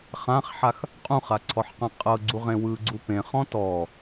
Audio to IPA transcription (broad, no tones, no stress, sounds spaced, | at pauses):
χ ã χ ħ a x | qʼ ũ χ a ǀʰ ɔ ħ q ã qʼ ɤ ɡ͡ǀ u ʁ ẽ w ɯ ɡ͡ǀ u p ẽ χ ɔ̃ t ɔ